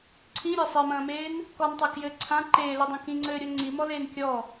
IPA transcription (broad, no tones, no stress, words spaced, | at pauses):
ǀʰĩɾʲa sˤemɐ̃ːmeːn | kɔntˤɛ kjɘ ǀʰã ǃeːlɨdˤɐ̃ kĩŋ͡ǀɘːɾʲo ŋ͡ǀimɔleːn kʲɔ